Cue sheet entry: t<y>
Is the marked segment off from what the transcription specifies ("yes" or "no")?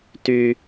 no